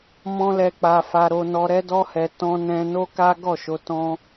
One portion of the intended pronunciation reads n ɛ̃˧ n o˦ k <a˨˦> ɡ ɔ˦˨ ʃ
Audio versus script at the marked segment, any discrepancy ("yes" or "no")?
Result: yes